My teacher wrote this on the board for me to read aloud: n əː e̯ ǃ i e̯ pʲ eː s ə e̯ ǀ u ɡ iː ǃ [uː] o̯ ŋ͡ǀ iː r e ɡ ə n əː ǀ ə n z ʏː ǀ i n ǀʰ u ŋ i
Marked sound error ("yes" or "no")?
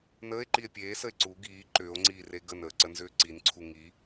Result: yes